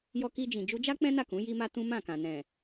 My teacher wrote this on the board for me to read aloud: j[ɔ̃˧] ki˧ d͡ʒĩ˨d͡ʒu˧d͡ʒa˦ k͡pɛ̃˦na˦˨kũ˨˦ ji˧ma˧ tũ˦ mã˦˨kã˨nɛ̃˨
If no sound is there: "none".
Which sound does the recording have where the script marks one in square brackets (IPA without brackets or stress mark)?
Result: ɔ˧